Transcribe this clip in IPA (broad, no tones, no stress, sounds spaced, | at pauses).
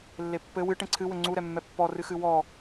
lː e pː ɘ w ɨ ʈ ẽ ǀʰ ɨ w ɘ ŋ͡ǀ u ɾ ɛ mː ɛ pː ɔ r ɨ x ɨ w ɔ